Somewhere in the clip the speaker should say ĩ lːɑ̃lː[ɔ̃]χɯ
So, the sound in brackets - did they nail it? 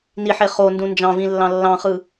no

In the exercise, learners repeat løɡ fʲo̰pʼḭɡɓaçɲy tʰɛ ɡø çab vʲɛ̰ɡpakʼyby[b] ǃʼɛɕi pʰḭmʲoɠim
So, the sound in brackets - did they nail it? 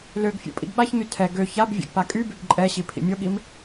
yes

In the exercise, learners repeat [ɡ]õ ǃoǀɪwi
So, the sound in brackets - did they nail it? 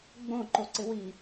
no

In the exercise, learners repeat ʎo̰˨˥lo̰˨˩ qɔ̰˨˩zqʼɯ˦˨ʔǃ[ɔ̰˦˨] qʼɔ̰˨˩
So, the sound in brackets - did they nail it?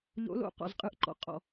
no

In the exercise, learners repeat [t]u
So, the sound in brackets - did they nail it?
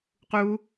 no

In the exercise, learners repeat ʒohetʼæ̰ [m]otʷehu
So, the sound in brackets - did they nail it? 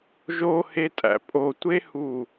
no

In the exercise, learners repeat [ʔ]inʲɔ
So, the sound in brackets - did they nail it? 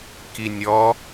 no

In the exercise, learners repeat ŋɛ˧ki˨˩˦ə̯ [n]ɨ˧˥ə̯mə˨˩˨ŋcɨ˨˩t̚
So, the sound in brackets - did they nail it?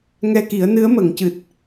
yes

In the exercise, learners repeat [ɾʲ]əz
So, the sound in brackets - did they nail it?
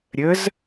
yes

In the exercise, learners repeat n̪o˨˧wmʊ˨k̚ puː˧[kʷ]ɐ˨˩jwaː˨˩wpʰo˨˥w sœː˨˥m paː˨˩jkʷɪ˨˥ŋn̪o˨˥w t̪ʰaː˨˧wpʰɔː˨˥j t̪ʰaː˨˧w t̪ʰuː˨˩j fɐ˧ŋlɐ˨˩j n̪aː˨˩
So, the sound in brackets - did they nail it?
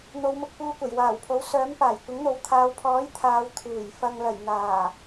yes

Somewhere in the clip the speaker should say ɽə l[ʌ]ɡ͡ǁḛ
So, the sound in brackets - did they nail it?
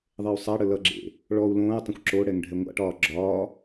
yes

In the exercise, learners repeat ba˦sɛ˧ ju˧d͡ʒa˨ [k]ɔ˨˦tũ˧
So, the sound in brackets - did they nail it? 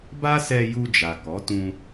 yes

